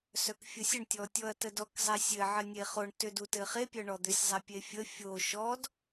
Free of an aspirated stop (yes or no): yes